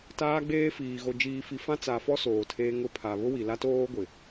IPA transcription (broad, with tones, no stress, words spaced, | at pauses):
taː˦ɡ͡beː˦fiː˨ ɣo˨d͡ʒiː˨fi˨ fã˦t͡sa˨fɔ˦ soː˨tʰeː˦ ŋʊ˦pʰa˨ βʊ˦wi˨la˦toː˦ ɡʷɪ˨